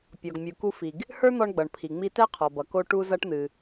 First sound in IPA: pʲ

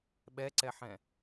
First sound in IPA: ɓ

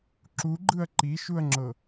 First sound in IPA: ǁ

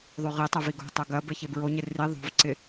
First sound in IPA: ðˤ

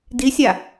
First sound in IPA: d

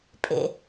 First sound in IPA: pʼ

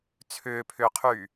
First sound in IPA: t͡sʰ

